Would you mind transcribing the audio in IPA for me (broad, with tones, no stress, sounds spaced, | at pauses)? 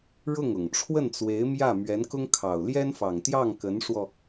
ɻ ʊ˥˩ ŋ ʊ˨˩ ŋ ʈ͡ʂʰ w ə˥˩ n t͡s w e˧˥ ɪ̯ m j ä˥˩ m ɥ ɛ˧˥ n k ʊ˥ ŋ kʰ ɑ˨˩ ʊ̯ l j ɛ˥ n f ɑ˨˩ ŋ t̪ j ɑ˥˩ ŋ k ə˧˥ n ʂ w ɔ˧